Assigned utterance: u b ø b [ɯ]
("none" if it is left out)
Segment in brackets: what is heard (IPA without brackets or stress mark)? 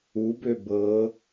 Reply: ɤ